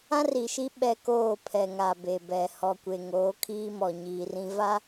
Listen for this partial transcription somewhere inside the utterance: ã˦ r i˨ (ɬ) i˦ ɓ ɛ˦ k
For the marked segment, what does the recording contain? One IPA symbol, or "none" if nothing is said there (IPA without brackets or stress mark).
ʃ